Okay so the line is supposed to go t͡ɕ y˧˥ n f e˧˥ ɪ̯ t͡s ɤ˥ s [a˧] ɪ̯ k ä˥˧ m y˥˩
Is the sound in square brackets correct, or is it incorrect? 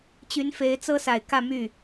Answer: incorrect